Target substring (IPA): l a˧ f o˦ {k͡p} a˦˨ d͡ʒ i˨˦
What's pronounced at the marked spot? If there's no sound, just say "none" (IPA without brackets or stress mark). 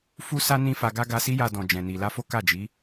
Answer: k